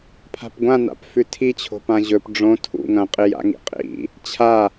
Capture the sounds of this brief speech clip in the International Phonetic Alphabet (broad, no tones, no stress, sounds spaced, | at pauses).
pʰ a̤ p ɡʷ ã n a̰ p f ʉ tʰ i t͡ɕʰ o̤ p ã ʑ ɵ p ɖ͡ʐ õ tʰ ṵ ŋ ɐ̃ qʼ i j a̰ ŋ ḭ qʼ ḭ | t͡ɕʰ a